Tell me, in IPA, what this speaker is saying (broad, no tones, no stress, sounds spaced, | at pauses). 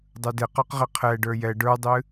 dˤ ə˞ d e q ə˞ q ʁ e qʰ ɛ ɖ ə˞ j ɛ ɖ ə˞ dˤ ɨ